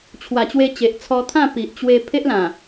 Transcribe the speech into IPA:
t͡ɕʰ w a˨˩ t͡ɕ w e˧ t͡ɕ e˨ ʔ t͡sʰ ɔ˧ t̪ʰ ã˥˧ p i˨ ʔ t͡ɕ w e˧ pʰ e˦ ʔ l ã˨˩

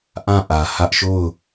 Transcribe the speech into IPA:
ʔ ã˦˨ ʔ ä˨ h ä˦ ʔ ʃ o˦˨ ʊ̯

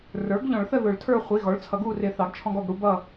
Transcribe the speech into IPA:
r ə˞˩˥ ɡ ʎ ɔ̃˨˩˦ ɭ θ ə˦˨ ð ʊ˨˩˦ ɭ tʰ ə˞˦˨ χʷ i˩˧˩ ɣ ɔ˩˥ ɭ t͡sʰ ʌ˨˩˦ ɡ u˦˨ r ɪ˨˩˦ θ ɑ˩˥ ɡ t͡ʃʰ ɔ̃˦ ɡ ɔ˦˨ ɡ ɽ u˦ b ʌ˦˨

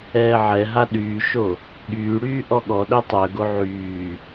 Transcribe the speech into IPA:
ɛː ʕ ɛ ɦ a ɗ yː ʃ o | ɠ yː ɽ yː ʔ ɔ ɠ ɔ ɗ œ tˤ œ ɡ o ʕ yː

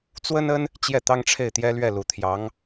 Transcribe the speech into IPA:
t͡s w ə˥ n ə˥ n | t͡ɕ j ɛ˥˩ t̪ ɑ˥ ŋ ʈ͡ʂʰ e˥˩ ɪ̯ t̪ j ɛ˥ l ɥ ɛ˥˩ l u˨˩ t̪ʰ j ɑ˧˥ ŋ

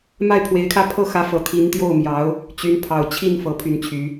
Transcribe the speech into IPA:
m a˥˩ ɪ̯ pʰ w e˧˥ ɪ̯ kʰ ä˥˧ pʰ ɤ˥˩ x ä˧˥ f ɤ˨˩ t̪ʰ i˧˥ n t̪ j o˥˩ ʊ̯ m j ɑ˧˥ ʊ̯ | t͡ɕ y˧˥ n pʰ ɑ˨˩ ʊ̯ t͡ɕʰ i˥˩ n f ɤ˧˥ pʰ y˥ n t͡ɕʰ y˧˥

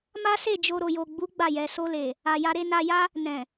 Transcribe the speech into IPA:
m a˦ s e˦˨ d͡ʒ o˧ ɾ o˨ j o˨ ɡ͡b u˨˦ ɡ͡b a˦˨ j ɛ˧ s o˧ l e˨ | a˨ j a˧ ɾ e˧ n a˧ j a˦ | n ɛ̃˨

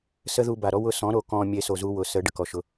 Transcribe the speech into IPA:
s ə˦ ð u˧ b a˨ ɾ ɔ˦ w ʊ˧ s ɔ̃˨˦ ɾ o˨ k ɔ̃˧ mʲ e˦ s o˧ z u˦ w ʊ˨˦ s ə˨˦ ɖ ə˨ k ɔ˨ ʃ ʊ˧

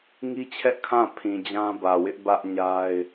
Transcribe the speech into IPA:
ŋ i˦ t͡ɕʰ ɛ˦ ʔ kʰ ã˦˨ pʰ ĩ˨ d͡ʑ ã˦ b ä˨ w ɪ˦ ʔ b ä˦ ʔ ɲ a˦ ɪ̯

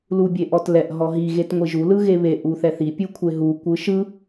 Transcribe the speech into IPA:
l u bʲ e ʔ ɔ t l ɛ ʔ ɦ ɔ ɦ i ɣ e t ŋʷ i ʒ u l ɯ ɣ e β e ʔ u θ ɛ θ i pʲ u kʷʰ e ɦ u kʷ ɯ ʃ ɯ

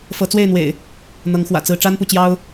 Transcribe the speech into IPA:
f ɤ˨˦ t͡s w e˥˨ ɪ̯ n̪ w ḛ˨˩ ɪ̯ | n̪ ɤ˨˦ ŋ x w ä̰˨˩ t͡s ɹ̩˦ ʈ͡ʂ a˦ n p u˨ t͡ɕ j ɑ˦ ʊ̯

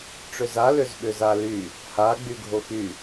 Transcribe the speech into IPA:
ʈ͡ʂ ʏ z a l ʏ z ɓ ʏ z a l y | h a ɡ͡b y ɡʱ o x y

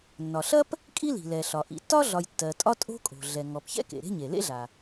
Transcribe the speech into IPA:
nː ɒ˩ ɬ ɐ˥ p | kʼ i˥ l i̤˩ l ɛ˩ ɬ ɒ˩ ʔ ḭ˩ tː ɒ˥ ɮ ɒ˩ j tː ɜ˩ tʼ ɒ˥ tʼ o̤˥ kʼ o̤˩ ɮ ɛ˩ ŋ ɔ˩ p ç ɛ̰˥ k ḛ˩ ɾ e̤˥ ɲ e˩ l ḛ˥ ɮ a˩

